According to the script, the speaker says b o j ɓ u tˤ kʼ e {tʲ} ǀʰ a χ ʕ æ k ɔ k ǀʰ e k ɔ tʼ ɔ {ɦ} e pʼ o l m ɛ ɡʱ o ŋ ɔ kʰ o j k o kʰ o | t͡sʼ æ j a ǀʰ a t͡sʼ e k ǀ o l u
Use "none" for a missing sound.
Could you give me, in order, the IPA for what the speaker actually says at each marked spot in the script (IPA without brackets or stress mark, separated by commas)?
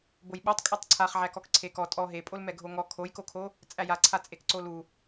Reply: tˤ, ɦ